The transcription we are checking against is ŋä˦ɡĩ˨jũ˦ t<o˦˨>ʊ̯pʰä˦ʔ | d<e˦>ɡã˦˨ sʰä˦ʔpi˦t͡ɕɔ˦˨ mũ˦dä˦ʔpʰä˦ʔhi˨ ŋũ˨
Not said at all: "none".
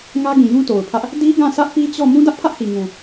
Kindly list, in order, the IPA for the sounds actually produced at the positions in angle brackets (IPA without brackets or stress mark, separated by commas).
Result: o˨, i˦